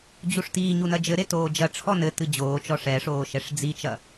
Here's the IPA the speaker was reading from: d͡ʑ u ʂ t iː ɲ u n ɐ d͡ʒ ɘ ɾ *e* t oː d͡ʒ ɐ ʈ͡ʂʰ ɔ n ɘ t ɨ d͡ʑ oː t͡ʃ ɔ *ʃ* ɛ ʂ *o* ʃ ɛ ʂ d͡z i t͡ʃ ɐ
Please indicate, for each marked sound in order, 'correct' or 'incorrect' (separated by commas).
correct, incorrect, incorrect